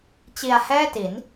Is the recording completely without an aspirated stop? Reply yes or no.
yes